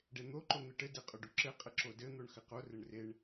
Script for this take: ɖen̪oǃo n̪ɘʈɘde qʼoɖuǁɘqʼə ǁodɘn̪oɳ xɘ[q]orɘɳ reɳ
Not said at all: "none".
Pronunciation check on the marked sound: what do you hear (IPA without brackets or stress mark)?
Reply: q